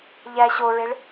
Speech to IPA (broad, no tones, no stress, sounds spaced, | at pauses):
ʎ æ ɕ o ɹ e ɭ